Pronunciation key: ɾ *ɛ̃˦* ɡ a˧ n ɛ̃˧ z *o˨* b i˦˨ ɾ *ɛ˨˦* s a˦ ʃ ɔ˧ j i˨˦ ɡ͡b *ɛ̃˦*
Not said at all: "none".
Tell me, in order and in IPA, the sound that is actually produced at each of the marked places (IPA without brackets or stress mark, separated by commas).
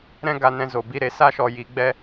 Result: ɛ̃˦, o˨, e˨˦, ɛ˦